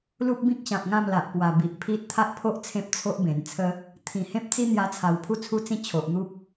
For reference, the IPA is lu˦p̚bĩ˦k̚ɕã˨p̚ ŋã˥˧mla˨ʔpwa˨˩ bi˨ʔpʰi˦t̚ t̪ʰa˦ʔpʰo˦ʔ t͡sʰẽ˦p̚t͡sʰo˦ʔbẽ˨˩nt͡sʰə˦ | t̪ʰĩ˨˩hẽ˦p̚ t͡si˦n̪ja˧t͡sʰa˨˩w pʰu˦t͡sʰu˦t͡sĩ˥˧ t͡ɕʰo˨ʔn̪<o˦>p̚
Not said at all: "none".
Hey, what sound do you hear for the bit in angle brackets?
u˦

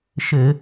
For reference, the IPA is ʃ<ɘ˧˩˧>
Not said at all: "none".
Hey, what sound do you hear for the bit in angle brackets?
ɘ˧˩˧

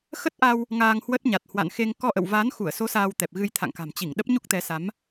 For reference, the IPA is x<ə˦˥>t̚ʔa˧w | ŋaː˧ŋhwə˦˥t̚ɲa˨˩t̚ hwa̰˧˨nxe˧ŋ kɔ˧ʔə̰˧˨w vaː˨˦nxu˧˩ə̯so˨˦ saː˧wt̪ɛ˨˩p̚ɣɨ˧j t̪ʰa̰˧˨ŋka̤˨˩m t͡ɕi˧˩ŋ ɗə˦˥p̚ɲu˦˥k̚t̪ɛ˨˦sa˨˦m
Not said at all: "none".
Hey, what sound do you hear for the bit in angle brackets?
ə˦˥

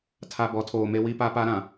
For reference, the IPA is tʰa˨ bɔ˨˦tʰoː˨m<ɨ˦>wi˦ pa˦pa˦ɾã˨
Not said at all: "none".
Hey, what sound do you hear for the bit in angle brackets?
e˦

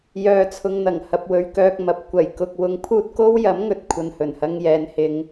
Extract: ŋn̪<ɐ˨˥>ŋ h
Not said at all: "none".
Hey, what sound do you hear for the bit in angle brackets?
ɐ˨˩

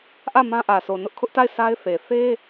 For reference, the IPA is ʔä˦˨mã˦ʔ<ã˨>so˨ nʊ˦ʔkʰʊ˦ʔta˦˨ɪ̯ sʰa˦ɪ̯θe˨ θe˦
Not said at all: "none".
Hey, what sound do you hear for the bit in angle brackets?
ä˨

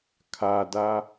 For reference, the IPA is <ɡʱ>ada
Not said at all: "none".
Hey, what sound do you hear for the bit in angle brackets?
kʰ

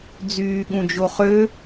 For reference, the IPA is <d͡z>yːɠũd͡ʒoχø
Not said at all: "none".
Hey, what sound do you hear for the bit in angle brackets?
d͡z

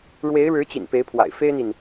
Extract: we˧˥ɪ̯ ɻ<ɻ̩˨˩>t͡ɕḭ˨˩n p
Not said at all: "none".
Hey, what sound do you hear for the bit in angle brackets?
ɻ̩˧˥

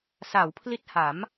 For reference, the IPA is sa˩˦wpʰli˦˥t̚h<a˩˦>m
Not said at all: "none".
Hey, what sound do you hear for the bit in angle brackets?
a˩˦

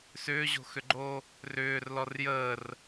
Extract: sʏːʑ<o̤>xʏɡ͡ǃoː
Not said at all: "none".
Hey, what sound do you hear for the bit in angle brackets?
o̤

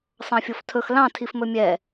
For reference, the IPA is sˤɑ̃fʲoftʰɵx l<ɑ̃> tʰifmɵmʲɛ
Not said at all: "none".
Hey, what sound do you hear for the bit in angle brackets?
ɑ̃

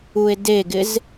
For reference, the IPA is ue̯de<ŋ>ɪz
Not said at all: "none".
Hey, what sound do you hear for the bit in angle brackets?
ɡ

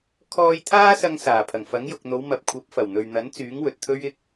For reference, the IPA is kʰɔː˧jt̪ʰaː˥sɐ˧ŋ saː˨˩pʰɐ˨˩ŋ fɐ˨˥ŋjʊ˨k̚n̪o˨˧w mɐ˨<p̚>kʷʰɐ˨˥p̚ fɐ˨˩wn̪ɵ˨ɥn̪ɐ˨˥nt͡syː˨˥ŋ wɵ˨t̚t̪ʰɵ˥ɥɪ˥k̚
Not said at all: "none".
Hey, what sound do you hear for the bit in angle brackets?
p̚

